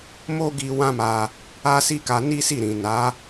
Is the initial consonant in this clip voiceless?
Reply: no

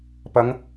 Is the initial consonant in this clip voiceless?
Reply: yes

